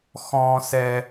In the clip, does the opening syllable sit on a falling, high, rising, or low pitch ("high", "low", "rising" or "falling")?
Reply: high